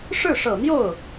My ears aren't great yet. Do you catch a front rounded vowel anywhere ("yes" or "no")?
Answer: no